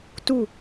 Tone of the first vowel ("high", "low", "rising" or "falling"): falling